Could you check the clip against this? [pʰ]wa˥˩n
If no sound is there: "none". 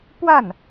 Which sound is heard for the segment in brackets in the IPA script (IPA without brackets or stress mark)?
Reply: p